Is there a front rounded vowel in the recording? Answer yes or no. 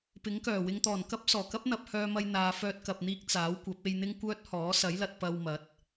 yes